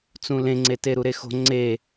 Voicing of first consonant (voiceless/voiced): voiceless